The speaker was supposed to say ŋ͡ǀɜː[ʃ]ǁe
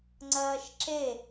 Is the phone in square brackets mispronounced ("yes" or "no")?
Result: no